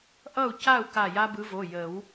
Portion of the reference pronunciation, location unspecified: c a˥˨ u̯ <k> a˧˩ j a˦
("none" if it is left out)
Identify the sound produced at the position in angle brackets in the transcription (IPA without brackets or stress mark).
k